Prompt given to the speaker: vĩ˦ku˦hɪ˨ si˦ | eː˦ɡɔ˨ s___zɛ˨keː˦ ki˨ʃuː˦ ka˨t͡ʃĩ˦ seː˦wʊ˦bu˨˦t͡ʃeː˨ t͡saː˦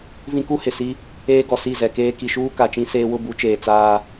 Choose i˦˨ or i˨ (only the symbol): i˦˨